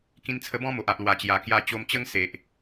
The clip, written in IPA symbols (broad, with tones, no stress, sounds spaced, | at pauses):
k ĩ˧ n t͡sʰ ə˧ b ɔ̃˦ m o˨ ʔ a˨ ʔ l w a˨˩ t͡ɕ j a˨˩ k j a˧ t͡ɕ o˧ m t͡ɕ ə˦ ŋ s e˨ ʔ